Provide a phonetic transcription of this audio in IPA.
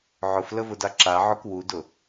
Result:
ʕ ʊ f l ə v ʊ d a ǁ a ʕ ʊ k w u d ʊ

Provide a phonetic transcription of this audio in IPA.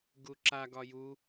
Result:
ɡ u ǁ a ɡ ɒ j u

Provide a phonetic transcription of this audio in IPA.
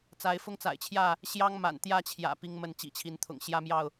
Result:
t͡s a˨˦ ɪ̯ f ʊ˦ ŋ t͡s a̰˨˩ ɪ̯ t͡ɕʰ j ä˥˨ | ɕ j ɑ˦ ŋ m a̰˨˩ n t̪ j ä˥˨ t͡ɕʰ j ä̰˨˩ p i˦ ŋ m ə˥˨ n t͡ɕ ḭ˨˩ t͡ɕʰ i˨˦ n t̪ʰ ʊ̰˨˩ ŋ ɕ j ä˦ m j ɑ˥˨ ʊ̯

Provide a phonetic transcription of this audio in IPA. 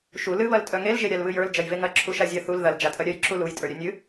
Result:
ʃ u l ɨ β ɐ l tʼ œ ŋ e l ʒ e ɾʲ a l β ɨ j ə˞ l d͡ʒ ɐ j v e ŋ ɐ ǁʰ u ʃ a zʲ ɐ θ u l ð ɐ l d͡ʒ a tʼ ɐ ɾʲ œ j ǁ u l u j tʼ ə˞ ɾʲ œ nʲ ɨ

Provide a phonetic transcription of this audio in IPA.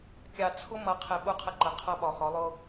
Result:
kʲ ɑ˨ t͡sʰ ʊ˦ m ʌ˨ qʰ ɪ˨ ɓ u˦ qʰ ə˦ ǃ ə˨ qʰ ʌ˦ ɓ ɒ˨ x ɒ˨˦ lˠ ʊ˦

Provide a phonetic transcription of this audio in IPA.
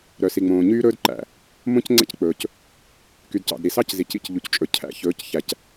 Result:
ɾ œ˨ s i˨ ŋ͡m õː˨ ɲ yː˦ ɾ ɵː˦ d ǃ æ̰˨ | m õ˦ c ŋ͡ǀ ɛ̰˦ c k͡p ɵː˨ c | k y˨ d c ɑ̰˨ d ɾ i˨ s ɑ˦ c z i˨ c ḭ˦ c ʎ u˨ c t͡ʃʼ ɵ˨ cʰ æ̰˨ ç ɵː˨˦ c ç æ˨ c

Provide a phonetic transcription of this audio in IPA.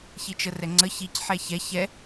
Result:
ç i t͡ʃ ə r ɛ ŋ͡ǀ ə ç i c ħ ɛ ç ɛ ç ɛ

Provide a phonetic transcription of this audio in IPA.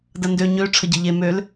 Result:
d ɐ n d ø ɲ ø ʈ͡ʂʰ ə ɟ ɪ ʎ e m ø l

